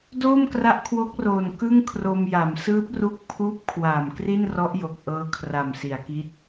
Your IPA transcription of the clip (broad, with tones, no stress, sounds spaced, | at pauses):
d oː˥˩ m k r a˦˥ ʔ kʰ w o˦˥ k̚ r oː˨˩ n k ɯ˥˩ ŋ kʰ r o˧ m j a˩˦ m s ɯː˦˥ p̚ r u˦˥ k̚ pʰ uː˦˥ p̚ kʰ w aː˨˩ m k r i˥˩ n r ɔ˦˥ ʔ j o˨˩ k̚ ʔ ɤː˧ kʰ r a˨˩ m s i˩˦ a̯ k i˦˥ t̚